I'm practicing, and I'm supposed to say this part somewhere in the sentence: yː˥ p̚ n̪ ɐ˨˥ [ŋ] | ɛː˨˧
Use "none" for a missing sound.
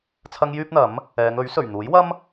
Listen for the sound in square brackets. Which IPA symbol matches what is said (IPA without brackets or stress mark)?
m